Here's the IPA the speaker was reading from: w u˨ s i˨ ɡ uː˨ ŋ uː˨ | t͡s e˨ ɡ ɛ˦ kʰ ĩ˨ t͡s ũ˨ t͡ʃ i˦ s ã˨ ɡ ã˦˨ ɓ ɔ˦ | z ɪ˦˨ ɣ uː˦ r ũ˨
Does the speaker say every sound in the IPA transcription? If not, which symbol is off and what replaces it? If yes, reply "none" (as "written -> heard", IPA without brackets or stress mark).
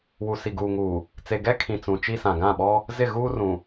none